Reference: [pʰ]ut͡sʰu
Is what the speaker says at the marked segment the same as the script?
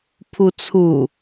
yes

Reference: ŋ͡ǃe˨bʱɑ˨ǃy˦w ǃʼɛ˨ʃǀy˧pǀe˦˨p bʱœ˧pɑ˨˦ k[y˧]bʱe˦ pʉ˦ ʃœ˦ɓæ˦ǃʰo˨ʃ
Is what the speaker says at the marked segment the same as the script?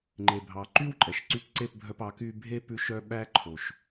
yes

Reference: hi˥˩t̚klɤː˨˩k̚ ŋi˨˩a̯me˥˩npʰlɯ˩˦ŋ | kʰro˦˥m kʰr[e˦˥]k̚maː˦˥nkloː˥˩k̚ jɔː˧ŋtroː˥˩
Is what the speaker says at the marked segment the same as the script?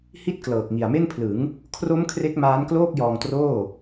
yes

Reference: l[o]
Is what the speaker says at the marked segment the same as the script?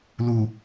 no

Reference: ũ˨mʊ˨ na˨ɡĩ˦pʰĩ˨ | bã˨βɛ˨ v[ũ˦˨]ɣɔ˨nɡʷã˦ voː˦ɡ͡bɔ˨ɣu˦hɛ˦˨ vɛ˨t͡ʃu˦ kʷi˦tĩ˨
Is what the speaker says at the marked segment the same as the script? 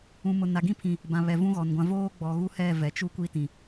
no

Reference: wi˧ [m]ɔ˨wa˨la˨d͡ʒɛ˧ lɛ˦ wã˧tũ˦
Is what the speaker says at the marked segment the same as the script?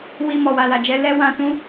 yes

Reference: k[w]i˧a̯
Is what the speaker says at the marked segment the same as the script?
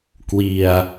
yes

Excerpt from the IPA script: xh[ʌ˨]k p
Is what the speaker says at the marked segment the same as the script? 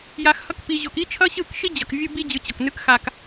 no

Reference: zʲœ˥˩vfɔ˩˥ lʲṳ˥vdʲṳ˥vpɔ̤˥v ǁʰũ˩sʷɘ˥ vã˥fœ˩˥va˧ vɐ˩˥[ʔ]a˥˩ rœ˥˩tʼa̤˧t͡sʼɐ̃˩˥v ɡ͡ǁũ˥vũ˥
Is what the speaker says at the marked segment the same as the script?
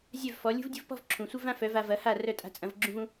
no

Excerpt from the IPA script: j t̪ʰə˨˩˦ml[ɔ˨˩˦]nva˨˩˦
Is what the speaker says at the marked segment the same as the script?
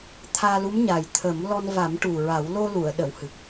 no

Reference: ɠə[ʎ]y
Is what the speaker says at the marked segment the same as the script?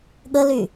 no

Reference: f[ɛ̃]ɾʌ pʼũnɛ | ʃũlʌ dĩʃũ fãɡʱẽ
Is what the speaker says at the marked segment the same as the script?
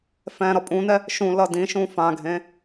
yes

